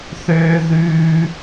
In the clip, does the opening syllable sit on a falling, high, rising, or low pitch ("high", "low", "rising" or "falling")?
high